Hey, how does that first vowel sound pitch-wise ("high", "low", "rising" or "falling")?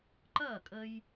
falling